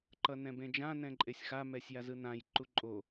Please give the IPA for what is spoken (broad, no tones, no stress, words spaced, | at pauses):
ǃʌnɛ̃bẽd͡ʒã nɛ̃ǃʼesʲxa mɛsʲjazɯnãj ǃuǃʼo